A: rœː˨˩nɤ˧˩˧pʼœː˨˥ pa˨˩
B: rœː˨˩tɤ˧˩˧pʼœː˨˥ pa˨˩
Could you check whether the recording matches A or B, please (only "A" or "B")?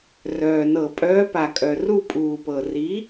A